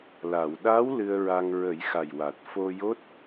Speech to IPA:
l a˨˩˨ w ɗ a˧˥ w l ɨ˧ ə̯ ɹ a˧ ŋ ɹ ə˨˩˦ j x a˨˩ j w a˨˩ t̚ f o˧ j o˦˥ t̚

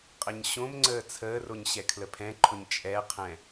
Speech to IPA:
qʼ ə ɲ ɕ õ m ŋ͡ǀ əː t͡sʰ əː r o ɲ ɕ ɛ kʰ l ə pʰ ɛ̃ ǃʰ ʊ ɲ t͡ʃʼ ɛ qʰ ɛ̃

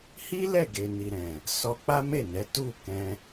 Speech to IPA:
h i˦ l ɛ˦˨ ɡ e˨ n i˨ ɾ ɛ̃˨ | s ɔ˧ k͡p a˦ m e˦˨ n ɛ˨˦ t u˦˨ k ɛ̃˧

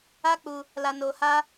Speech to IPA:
a˦ k͡p u˧ | l a˧ n oː˧ h aː˦

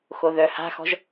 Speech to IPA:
x o ð œ h a̤ x ɔ̤ ʒ

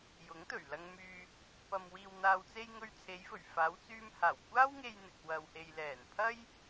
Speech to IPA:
j ʊ˨˥ ŋ t̪ ɵ˨˩ ɥ l ɐ˧ ŋ m yː˧ | p ɐ˨ m w iː˨ w n̪ aː˨ w t͡s e˧ j ŋ ɵ˧ ɥ t͡sʰ e˨˧ j f ɵ˨˩ ɥ f aː˨˧ w t͡s yː˧ m h aː˨˩ w kʷ aː˥ w ŋ e˧ j n̪ ɪ˨ k̚ w ɐ˨ w h e˨ j l ɛː˨˩ n pʰ ɐ˥ j

